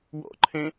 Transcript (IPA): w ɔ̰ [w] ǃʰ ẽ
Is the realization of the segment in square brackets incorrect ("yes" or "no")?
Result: yes